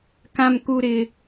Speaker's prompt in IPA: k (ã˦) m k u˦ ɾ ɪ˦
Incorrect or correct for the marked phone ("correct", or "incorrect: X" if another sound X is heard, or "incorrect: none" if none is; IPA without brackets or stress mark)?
correct